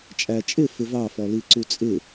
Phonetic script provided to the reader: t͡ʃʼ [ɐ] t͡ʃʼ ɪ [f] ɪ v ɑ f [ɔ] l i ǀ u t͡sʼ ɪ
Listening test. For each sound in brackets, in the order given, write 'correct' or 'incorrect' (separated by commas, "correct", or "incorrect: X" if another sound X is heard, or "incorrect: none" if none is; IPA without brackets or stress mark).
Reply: incorrect: æ, correct, correct